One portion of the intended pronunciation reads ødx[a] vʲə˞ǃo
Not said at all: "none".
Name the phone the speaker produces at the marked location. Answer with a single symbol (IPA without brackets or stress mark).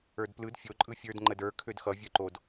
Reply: ʌ